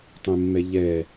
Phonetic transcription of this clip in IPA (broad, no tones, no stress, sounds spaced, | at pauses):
tˤ ẽ mː ɛ ʎ ɛ